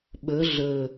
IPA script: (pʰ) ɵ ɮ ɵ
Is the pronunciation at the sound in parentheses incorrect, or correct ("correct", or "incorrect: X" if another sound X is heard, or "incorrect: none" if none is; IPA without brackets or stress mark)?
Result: incorrect: ɓ